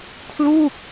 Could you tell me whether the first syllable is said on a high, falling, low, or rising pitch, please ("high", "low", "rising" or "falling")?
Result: falling